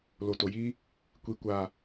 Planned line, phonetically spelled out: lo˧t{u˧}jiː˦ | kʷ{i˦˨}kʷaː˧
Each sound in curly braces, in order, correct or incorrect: incorrect: o˧, incorrect: i˧

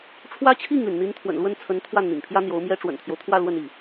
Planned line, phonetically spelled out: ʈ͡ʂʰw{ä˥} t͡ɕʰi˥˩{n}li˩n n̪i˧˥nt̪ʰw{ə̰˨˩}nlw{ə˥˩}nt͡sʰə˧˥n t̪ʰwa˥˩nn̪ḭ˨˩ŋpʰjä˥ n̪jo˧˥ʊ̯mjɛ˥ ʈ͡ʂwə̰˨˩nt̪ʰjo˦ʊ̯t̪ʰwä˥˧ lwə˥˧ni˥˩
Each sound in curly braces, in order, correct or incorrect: correct, incorrect: ŋ, correct, correct

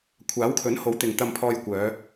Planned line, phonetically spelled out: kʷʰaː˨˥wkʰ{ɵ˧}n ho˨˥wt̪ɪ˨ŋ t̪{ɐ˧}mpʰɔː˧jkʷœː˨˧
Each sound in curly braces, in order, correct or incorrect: incorrect: ɵ˨˥, correct

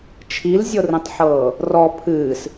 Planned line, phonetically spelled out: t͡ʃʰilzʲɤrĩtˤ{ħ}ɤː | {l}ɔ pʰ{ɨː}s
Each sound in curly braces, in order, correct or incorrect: correct, incorrect: r, correct

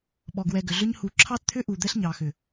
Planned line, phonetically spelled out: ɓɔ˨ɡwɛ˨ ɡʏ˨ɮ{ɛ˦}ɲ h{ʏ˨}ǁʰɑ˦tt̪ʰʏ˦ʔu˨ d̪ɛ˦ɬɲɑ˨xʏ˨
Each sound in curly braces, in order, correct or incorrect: incorrect: ʏ˦, incorrect: u˨

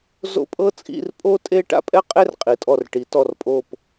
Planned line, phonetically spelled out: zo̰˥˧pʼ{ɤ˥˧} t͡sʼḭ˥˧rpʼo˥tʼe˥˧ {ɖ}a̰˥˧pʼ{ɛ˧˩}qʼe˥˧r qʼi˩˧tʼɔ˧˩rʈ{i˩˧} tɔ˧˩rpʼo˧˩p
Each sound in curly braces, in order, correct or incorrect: incorrect: ɤ˥, incorrect: ʈ, incorrect: ɛ˥˧, correct

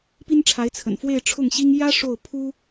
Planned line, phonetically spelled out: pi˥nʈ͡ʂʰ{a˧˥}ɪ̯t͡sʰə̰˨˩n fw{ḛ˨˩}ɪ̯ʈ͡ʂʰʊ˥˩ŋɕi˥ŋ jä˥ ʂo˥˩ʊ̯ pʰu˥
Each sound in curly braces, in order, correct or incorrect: correct, incorrect: e˥˧

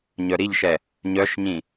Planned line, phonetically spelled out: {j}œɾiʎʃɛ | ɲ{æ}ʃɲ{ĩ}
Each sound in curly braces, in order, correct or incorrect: incorrect: ɲ, incorrect: œ, correct

